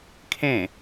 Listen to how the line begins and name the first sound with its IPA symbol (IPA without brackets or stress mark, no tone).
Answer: kʰ